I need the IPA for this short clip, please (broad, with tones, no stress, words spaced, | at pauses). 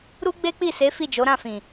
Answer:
ɾu˦ɡ͡be˦k͡pi˦˨se˨˦ fi˦˨d͡ʒo˨˦ɾã˦˨fĩ˨